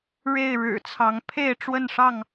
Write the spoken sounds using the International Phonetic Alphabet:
ɻ e˥˨ ɪ̯ ɻ ɻ̩˨˩ t͡sʰ ɑ˨˦ ŋ pʰ e˥˨ ɪ̯ ʈ͡ʂ w ə˥˨ n ʂ ɑ˥˨ ŋ

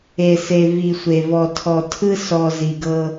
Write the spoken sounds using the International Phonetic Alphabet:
e˨ s e˨ v i˨ sʷ e˨ v ɔ˨ tʰ ɔ˨ tʰ ɯ˦ s ɔ˨ z i˨ ɡ ɤ˦

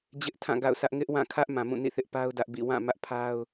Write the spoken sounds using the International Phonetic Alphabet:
d͡ʑ ɪ˦ ʔ tʰ ã˦˨ ɡ a̰˦˨ ʊ̯ sʰ ä˦ ʔ ŋ ɪ˦ ʔ w ã˦˨ kʰ ä˦ ʔ m ã˨ m ũ˦˨ n ḭ˦˨ θ ɪ˦ ʔ p a˦ ʊ̯ d ä˦ ʔ b ḭ˦˨ w ã˦˨ m ä˦ ʔ pʰ a˦ ʊ̯

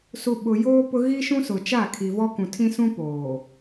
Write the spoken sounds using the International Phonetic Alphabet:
s u˨ ɓ ʊ˨ j oː˦ p ʊ˦ ɣ i˦ ʃ ũ˦ s ʊ˨ t͡ʃ a˦˨ kʰ i˨ v ɔ˦ k ũ˨ tʰ ĩ˦ s ũ˦ p oː˨

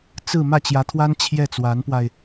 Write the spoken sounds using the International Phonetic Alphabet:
t͡s ɹ̩˥˧ m ä˥˩ t͡ɕ j ä˧˥ t̪ʰ w a˥ n t͡ɕʰ j ɛ˥˩ t͡s w a˧˥ n p w a˧ ɪ̯

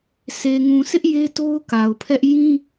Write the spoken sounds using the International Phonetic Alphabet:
s e˨ ŋ ũ˨ s ɪ˦ ʔ j e˦ t o˦ ʊ̯ k a˨ ʊ̯ pʰ ɛ˦ ʔ j ĩ˦

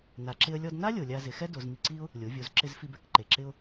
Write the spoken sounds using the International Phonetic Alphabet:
n a˩ ǁ ɪ˧ ə̯ lʲ ɔ˧ d n a˥ lʲ o˩ lʲ a˧ z ɪ˩˧ x ɛ˥ d o˩˧ z m i˧ ǀ i˥ ʊ̯ | lʲ o˩˧ vʲ o˩˧ z ǁ ɪ˧ z f i˧ b ɛ˧ k ǃ e˩ ǁ ɪ˧ ʊ̯

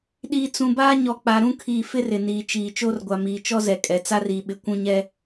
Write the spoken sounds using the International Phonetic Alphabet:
ɗ iː˨ t͡s ũ˨ b aː˦ ɲ ɔ˨ k͡p a˨ ɾ ũ˦ kʰ iː˨ f ɪ˦ r ɪ˨ n iː˨ t͡ʃ iː˨ t͡ʃ oː˦ r ɡʷ a˨ m iː˨ t͡ʃ ɔ˦ z ɛ˨ kʼ ɛ˨ t͡s a˦ r iː˨ ɓ ɪ˨ kʷ ũ˦ ɲ ɛ˦

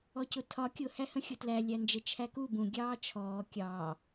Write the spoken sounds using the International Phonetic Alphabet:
ɔ c ʊ tʰ ɒ kʲ ʊ h æ h ə̃ xʲ ʊ t l æ lʲ æ n d͡ʒ ə t͡ʃʰ æ k u b ũ ɡʲ ɑː t͡ʃʰ ɔː kʲ ɑː

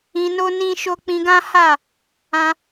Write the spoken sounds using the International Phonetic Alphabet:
ĩ˧ n o˦ n ĩ˦ ʃ o˦ k͡p ĩ˧ ɡ ã˦ h a˦˨ | ã˧

